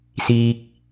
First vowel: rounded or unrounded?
unrounded